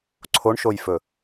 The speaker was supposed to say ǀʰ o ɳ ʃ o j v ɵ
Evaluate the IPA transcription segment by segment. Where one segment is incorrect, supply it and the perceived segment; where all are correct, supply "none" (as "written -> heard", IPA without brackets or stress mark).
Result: v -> f